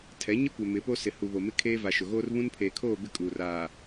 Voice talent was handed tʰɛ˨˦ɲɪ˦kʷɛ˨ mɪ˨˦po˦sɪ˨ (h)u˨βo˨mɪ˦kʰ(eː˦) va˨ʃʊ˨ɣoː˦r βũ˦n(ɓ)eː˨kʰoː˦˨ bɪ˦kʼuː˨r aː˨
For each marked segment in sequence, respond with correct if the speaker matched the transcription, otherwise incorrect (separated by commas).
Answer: correct, correct, incorrect